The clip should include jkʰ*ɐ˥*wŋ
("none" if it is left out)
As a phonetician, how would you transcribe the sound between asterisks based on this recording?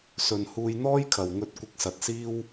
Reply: ɐ˨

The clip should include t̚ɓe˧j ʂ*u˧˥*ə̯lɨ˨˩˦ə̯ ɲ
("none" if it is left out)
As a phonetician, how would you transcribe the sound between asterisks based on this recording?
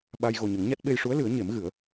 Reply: u˧˥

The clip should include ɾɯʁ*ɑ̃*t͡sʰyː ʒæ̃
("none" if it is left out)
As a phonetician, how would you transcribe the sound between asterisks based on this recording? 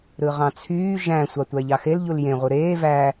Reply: ɑ̃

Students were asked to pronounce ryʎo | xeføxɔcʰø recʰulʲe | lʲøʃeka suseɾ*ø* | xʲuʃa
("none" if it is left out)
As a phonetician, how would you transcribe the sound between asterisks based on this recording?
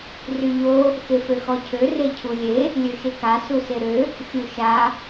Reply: ø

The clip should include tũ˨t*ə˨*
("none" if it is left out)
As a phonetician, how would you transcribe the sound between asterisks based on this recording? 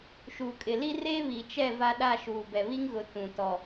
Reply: ɔ˨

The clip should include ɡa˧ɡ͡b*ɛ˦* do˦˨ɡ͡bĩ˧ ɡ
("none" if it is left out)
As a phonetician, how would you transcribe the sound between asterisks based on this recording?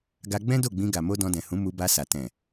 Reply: ɛ̃˦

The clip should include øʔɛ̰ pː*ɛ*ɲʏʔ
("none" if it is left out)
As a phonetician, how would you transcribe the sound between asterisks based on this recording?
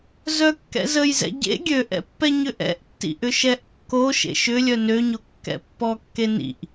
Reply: ɛ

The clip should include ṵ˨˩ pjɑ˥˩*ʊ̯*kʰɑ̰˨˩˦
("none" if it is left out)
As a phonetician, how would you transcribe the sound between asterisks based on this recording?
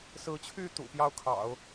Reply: ʊ̯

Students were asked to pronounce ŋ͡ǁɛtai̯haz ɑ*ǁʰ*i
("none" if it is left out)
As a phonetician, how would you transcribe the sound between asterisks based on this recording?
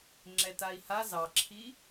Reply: ǁʰ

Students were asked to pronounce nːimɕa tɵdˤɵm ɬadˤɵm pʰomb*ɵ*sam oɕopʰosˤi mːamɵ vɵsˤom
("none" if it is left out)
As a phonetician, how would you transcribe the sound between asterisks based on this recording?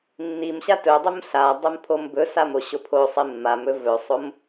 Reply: ɵ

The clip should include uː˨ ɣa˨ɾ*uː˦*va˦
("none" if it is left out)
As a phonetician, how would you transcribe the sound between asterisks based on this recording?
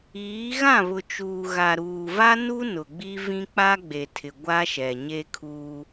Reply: uː˨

